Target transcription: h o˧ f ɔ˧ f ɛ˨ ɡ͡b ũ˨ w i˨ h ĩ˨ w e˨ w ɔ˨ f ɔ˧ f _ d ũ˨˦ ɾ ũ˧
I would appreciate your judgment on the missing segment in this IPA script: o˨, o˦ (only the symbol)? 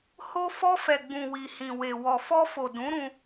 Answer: o˨